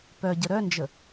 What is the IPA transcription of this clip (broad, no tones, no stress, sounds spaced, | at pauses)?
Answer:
p œ ɟ ə ɾ œ n d͡ʒ ə